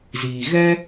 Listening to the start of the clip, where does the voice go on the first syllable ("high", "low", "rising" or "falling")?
low